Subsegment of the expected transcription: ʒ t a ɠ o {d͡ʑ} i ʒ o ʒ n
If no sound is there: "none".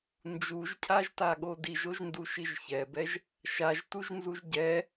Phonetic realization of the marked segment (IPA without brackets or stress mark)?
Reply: d